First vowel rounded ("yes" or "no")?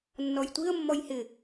yes